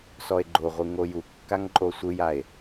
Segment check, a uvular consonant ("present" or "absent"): present